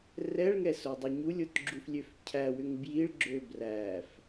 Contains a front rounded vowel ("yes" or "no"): yes